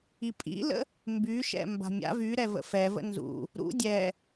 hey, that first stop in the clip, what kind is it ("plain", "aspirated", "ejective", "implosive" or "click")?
ejective